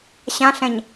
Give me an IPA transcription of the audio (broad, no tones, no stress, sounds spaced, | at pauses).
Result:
ɕ ã ɬ ɛ̃ ɲ